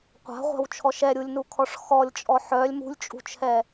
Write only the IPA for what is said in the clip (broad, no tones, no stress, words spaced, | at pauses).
qʷa̤ʁʷa̤wt͡ʃʰɔ ʃɛɾʲulʲnukʰɔʂ xɔlʲt͡ʃʼɔ ħœlʲ mṳlʲt͡ʃʼṳt͡ʃʰɛ